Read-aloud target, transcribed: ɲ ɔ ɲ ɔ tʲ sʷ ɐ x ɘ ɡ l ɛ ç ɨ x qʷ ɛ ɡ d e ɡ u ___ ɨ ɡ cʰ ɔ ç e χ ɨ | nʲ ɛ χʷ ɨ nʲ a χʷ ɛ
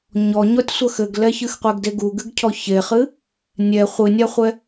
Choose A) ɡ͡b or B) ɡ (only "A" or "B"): B